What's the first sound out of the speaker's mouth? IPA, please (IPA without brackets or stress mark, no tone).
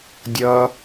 dʲ